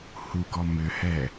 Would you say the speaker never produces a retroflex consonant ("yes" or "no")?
yes